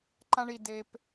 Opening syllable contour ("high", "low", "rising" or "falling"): high